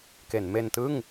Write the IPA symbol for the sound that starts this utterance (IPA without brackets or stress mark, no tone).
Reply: k